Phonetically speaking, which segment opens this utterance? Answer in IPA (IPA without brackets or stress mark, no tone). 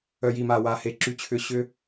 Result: œ